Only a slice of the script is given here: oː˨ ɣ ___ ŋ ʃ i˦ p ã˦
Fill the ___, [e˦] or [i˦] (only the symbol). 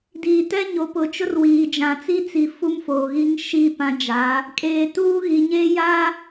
i˦